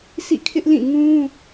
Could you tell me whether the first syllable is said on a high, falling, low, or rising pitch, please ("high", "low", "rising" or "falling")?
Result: falling